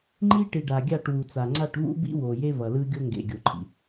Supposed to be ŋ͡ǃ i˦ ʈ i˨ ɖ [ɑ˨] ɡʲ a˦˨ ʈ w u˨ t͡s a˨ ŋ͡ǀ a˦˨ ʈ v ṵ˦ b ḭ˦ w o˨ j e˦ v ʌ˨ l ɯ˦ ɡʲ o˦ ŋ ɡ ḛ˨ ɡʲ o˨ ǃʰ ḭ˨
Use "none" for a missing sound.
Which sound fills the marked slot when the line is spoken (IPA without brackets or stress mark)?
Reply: a˨